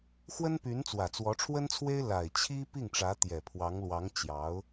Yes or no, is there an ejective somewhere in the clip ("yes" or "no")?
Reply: no